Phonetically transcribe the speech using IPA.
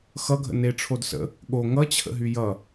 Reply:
x ʌ ɡʱ ə̰ n e ʈ͡ʂʰ o d s ə̰ | ɠ o ŋ ʌ t͡ɕʰ ə̰ ɦ y j ʌ

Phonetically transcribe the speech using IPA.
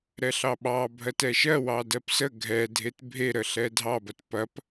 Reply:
ɾ ɛ ɬ ɑ ɓ ɑ bʱ ɜ t ɛ ʃ ɜ w ɑ d ɜ p s ə ɡʱ ɛ dʱ e t bʱ e ɾ ə ɬ ɛ dʱ ɑ b ɐ t p ɐ p

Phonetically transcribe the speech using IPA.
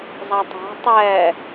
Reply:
zˤ a tˤ a̤ tˤ ɛ

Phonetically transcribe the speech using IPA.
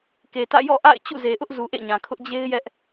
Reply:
k e˨ t ä̰˦˨ j ɔ̰˦˨ ʔ a̰˦˨ ɪ̯ t͡ɕ ṵ˦˨ z e˨ ʔ ʊ˦ ʔ z u˨ ʔ ḛ˦˨ ɲ ã˨ kʰ ʊ˦ ʔ d͡ʑ e˦ ɪ̯ j ɛ˦ ʔ

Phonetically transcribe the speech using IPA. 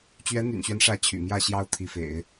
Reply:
t͡ɕ ɥ ɛ˧˥ n̪ y̰˨˩ n ɕ ɥ ɛ˦ n ʂ ä˧˥ t͡ɕʰ y̰˨˩ m j ä˥˩ ɕ j ɑ˥ ʊ̯ t̪ʰ i˧˥ f ḛ˨˩˦ ɪ̯

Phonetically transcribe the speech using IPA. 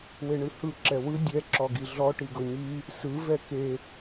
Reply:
w e ɳ ɯ h ɯ ǁ ɛ w ɯ dʲ ɛ ǁ ɔ ɡ i ɮ ɔ ʈ i ɡ ɤ ɲ i | s ɯ v ɛ k e

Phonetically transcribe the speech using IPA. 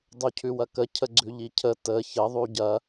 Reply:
dˤ u cʰ ʉ w ɐ k ə cʰ ə ɡ͡ǀ ʉ ʎ i cʰ ə t ə ç ə ðˤ u ɟ ɐ

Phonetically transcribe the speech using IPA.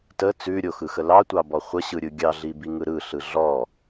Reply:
t ə t͡s ʉ ɾʲ o x ɯ x ə l ɑ tʷ ɑ b ɔ χʷ ə ɕ ɯ ɾʲ ɯ ɡʲ ɑ ɮ i b i ŋ ɯ ɾ ɯ ɬ ɯ ɮ ɔ

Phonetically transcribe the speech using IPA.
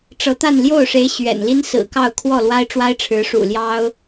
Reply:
ʈ͡ʂ ɤ˧˥ t̪ a˥˧ n l j o˥˩ ʊ̯ ʂ e˧˥ ɪ̯ ɕ ɥ ɛ̰˨˩ n l i˥ n s ɹ̩˨˩ k ɑ˥˧ ʊ̯ kʰ w ɔ˥˩ l w a˥ ɪ̯ ʈ͡ʂ w a˥ ɪ̯ ʈ͡ʂʰ ɻ̩˧˥ ʂ ṵ˨˩ l j ɑ˥ ʊ̯

